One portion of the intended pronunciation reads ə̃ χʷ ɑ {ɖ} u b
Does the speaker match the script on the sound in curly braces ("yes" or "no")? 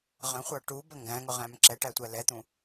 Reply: no